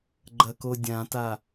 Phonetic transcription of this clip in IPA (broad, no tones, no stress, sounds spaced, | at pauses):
ɡ͡ǃ ɐ k o dʲ ã t a